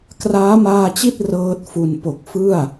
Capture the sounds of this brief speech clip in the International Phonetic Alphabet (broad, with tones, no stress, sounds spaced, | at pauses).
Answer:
k r aː˦˥ m aː˧ t͡ɕ i˥˩ t̚ r ɤː˥˩ t̚ f u˧ n p o˨˩ k̚ f ɯ˥˩ a̯